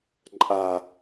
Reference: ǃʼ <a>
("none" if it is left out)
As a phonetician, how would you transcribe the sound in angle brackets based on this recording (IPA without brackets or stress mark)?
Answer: a